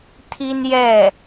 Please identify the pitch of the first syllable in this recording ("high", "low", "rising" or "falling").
high